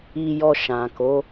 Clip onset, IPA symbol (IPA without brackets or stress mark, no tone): i